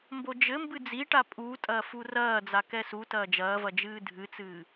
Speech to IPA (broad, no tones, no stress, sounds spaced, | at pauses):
m b o d͡ʒ ɘ m b ɨ d͡z i ʈ a pʼ u tʼ ɐː f u r ɐː d͡z a k ɛ s u t ɐː d͡ʒ ɐː v ɐ d͡ʒ ɨː dʱ ɨ t͡s ɨː